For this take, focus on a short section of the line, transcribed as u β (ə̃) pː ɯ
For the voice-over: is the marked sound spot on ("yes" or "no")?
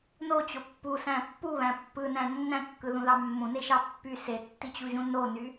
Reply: no